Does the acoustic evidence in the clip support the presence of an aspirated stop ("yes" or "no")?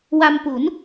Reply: no